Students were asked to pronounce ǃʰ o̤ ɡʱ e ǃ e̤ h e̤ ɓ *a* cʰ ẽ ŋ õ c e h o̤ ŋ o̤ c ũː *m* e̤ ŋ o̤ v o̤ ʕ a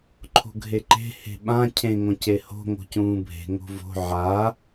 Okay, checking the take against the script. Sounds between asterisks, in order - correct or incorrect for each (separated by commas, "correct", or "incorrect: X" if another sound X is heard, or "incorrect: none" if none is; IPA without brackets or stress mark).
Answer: incorrect: ã, incorrect: bʱ